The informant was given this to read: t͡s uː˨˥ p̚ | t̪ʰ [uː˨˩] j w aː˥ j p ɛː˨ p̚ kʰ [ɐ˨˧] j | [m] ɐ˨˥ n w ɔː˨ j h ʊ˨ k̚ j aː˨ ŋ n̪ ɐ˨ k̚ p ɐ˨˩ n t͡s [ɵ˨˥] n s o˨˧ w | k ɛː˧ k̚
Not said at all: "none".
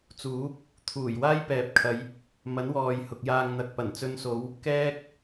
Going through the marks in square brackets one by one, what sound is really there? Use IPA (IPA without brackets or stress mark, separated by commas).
uː˨˩, ɐ˨˧, m, ɵ˧